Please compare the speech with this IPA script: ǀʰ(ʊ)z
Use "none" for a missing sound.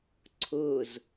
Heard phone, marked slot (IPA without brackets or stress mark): ʊ